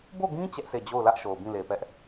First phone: b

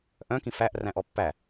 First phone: ʔ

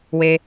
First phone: w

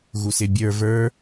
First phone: ɣ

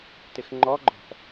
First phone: t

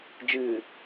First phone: d͡ʒ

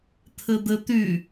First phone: t̪ʰ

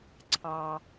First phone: ǀʰ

